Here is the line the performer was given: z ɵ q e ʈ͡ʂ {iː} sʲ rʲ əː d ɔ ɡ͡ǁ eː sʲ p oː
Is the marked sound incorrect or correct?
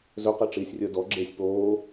correct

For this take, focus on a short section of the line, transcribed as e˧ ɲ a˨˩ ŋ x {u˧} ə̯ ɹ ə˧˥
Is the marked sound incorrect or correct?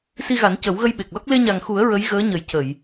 incorrect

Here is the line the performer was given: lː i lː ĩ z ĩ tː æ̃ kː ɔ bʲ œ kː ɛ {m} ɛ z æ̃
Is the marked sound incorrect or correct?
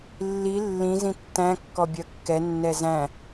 incorrect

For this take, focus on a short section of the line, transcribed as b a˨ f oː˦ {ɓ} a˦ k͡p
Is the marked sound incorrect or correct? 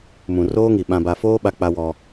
correct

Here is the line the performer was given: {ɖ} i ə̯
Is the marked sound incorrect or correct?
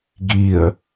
incorrect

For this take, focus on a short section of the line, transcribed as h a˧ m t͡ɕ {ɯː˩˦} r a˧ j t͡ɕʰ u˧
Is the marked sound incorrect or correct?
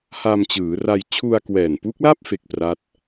correct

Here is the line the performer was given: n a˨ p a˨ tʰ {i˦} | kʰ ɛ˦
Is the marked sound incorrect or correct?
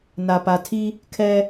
correct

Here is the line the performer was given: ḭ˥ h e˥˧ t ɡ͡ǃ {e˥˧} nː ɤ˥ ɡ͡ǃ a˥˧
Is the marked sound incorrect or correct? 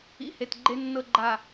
incorrect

